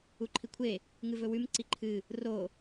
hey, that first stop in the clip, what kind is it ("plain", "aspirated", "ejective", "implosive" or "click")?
click